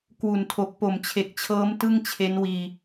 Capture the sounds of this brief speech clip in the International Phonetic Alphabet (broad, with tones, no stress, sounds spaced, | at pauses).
k w u˨˩ n tʰ o˨˩ k̚ p o˨˩ m t͡ɕʰ e˨˩ k̚ t͡ɕʰ ɤː˦˥ m t ɯ˥˩ ŋ t͡ɕʰ e˦˥ n w iː˧